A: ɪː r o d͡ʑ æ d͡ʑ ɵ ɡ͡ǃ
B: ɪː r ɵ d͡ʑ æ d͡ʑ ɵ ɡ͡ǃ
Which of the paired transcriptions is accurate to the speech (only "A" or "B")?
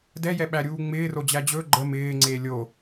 A